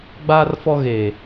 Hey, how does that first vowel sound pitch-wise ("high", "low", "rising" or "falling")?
high